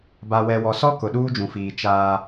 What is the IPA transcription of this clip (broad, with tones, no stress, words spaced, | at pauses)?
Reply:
ba˨wɛ˨wɔ˨sɔ˦ kʊ˨ɗuː˦d͡ʒũ˨fiː˨ t͡ʃaː˦